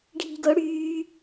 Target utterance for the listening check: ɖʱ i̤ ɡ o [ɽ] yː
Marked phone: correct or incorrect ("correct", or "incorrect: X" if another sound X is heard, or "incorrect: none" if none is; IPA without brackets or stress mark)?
correct